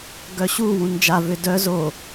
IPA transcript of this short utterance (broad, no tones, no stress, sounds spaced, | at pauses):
ɡ œ ɕ u w ũ n d͡ʒ a v ʏ d œ z o